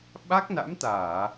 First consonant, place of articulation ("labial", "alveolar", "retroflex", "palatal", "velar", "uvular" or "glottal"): labial